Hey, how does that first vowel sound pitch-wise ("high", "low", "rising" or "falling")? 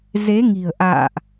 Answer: rising